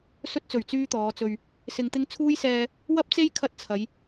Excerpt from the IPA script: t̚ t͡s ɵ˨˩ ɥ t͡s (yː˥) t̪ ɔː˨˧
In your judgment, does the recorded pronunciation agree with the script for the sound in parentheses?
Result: yes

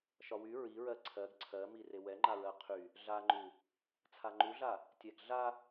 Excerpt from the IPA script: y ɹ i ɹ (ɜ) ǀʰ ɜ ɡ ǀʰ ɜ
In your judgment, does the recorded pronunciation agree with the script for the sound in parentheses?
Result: yes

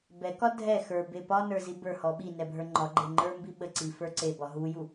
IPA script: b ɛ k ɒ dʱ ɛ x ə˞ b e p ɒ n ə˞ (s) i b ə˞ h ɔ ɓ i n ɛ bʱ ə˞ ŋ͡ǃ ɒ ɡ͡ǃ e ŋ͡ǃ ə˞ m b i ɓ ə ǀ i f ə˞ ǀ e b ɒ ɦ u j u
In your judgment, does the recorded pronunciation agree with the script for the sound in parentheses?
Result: no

